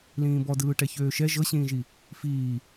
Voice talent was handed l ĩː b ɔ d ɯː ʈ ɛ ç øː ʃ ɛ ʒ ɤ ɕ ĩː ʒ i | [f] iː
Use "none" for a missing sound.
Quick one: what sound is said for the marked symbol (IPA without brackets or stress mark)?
f